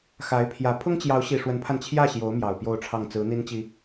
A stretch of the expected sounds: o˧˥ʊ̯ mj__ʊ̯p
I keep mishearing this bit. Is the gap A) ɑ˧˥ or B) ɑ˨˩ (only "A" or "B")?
B